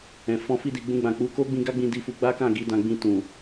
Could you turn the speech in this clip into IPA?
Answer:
ɛ̃˨ f ɔ̃˧ f i˧ d i˨ ɡ͡b ũ˧ ɡ͡b ã˨ k͡p u˧ k o˦ ɡ͡b ĩ˧ ɡ a˦ ɡ͡b ĩ˧ d i˧ f u˧ ɡ͡b a˦ k ã˦˨ ɡ i˨˦ d ã˧ ɡ͡b ĩ˧ t ũ˨

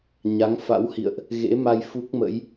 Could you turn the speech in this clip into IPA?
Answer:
ɲ a˨˦ ŋ f a̰˧˥ w h ḭ˧˨ ə̯ ʔ | ɣ ḛ˧˥ m a˧ j f u˦˥ k̚ m ə̰˧˥ j

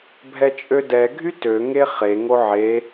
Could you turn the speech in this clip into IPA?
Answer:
bʱ ɛ t͡ʃʼ ø d ɛ ɡʱ y t ø ŋ e χ e ŋ o ʕ e

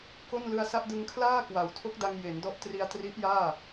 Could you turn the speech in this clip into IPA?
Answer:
k o˥˩ n l ɯ˧ a̯ s a˥˩ ʔ d ɯ˧ ŋ kʰ l aː˥˩ k w a˨˩ w tʰ o˦˥ k̚ d a˧ ŋ j e˩˦ n d ɔ˦˥ ʔ t r i˧ a̯ t r i˦˥ ʔ j aː˥˩

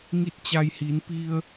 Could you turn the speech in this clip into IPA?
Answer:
ŋ i˥˨ t̚ t͡ɕ a˧ j h i˩˧ n p i˧ ə̯

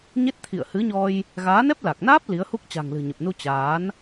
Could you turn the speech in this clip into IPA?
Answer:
ɲ e˦˥ t̚ t̪ʰ ḭ˧˨ ə̯ h ɨ˨˦ ɲ ɔ˧ j | ɣ aː˨˦ n ɛ˦˥ p̚ l a˨˩ k̚ n aː˦˥ p̚ l i˨˦ ə̯ h u˦˥ k̚ t͡ɕ a̤˨˩ ŋ l ɨ̤˨˩ ɲ ə˨˩ p̚ n u˧ t͡ɕ aː˨˦ n

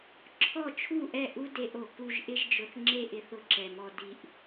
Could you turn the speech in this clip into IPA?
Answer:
ǁʰ ɔ˦˨ t͡ʃʰ u˦˨ ʔ ɛ˦˨ ʔ u˦ d e˧ ʔ o˨ k u˧ ʒ ʔ ɪ˧ ʒ d͡ʒ ʊ˨ θ ŋ͡ǁ e˦ ʔ ɪ˧ θ ʊ˧ ǁ ɛ˨ m ɔ˧ d i˧ ʔ

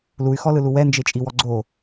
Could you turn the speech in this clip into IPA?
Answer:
l u y̯ x ɔ l ɯ l u w ɛ n d͡ʒ e t͡ʃʼ i w ɔ ɡ͡ǀ o

